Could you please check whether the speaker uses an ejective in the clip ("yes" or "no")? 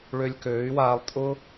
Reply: yes